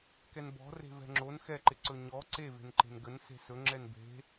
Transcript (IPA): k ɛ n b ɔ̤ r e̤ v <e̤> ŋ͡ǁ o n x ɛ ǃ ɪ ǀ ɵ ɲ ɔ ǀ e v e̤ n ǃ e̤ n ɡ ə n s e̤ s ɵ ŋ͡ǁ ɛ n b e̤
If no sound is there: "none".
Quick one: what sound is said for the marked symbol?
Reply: ɛ̤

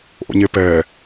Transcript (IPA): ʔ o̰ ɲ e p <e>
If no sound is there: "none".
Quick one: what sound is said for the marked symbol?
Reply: ɛ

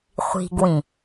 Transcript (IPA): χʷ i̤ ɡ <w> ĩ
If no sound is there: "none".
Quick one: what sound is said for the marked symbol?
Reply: w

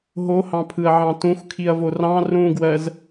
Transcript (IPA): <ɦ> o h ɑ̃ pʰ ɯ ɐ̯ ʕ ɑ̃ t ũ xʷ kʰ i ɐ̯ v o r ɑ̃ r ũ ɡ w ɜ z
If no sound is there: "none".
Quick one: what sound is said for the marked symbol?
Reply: ɦ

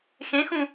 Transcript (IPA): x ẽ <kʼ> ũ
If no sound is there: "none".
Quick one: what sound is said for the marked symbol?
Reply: x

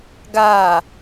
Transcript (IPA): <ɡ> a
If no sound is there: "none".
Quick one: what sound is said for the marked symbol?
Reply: ɡ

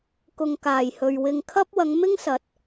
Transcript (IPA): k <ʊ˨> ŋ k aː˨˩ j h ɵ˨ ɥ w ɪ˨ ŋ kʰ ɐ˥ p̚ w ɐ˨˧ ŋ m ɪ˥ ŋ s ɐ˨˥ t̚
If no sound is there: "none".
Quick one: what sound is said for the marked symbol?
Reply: ʊ˨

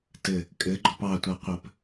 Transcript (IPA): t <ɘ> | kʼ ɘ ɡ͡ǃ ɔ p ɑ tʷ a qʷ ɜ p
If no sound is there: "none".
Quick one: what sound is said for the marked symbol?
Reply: ɘ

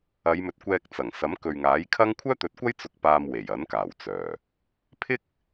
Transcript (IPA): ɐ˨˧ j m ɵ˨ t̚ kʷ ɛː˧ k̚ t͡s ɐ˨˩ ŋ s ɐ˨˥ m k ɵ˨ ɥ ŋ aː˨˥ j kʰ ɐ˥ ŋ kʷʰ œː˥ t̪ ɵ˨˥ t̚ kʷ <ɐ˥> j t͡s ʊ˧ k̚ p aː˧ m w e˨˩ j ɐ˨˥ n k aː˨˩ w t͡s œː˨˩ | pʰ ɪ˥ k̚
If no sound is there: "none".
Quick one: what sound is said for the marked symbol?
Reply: ɐ˥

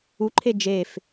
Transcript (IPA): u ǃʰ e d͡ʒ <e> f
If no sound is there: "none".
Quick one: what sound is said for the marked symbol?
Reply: e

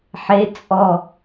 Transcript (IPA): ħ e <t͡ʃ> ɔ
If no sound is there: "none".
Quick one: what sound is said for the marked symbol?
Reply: t͡sʼ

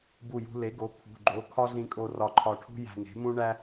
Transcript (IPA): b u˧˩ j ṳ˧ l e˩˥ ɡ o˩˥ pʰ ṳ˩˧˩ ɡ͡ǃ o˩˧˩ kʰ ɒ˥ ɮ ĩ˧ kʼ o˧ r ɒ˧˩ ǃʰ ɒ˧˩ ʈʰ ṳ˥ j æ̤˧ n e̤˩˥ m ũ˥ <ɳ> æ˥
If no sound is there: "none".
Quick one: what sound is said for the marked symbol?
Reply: ɳ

